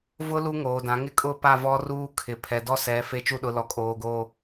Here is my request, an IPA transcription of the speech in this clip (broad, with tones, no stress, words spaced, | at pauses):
vʊ˦ lu˦ŋoː˨dã˨˦ ŋɪ˦kʼʊ˦˨pa˦˨vɔ˦ ruː˦kʰɪ˨ pʰɛ˨dɔ˦sɛ˨˦ fe˦ t͡ʃu˦ɗʊ˨˦lɔ˨ kʼoː˨ɡoː˨